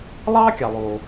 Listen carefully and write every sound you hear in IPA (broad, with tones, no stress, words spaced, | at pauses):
lˠɑː˦kʲɑ˩lˠoː˩